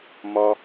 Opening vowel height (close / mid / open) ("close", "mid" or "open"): open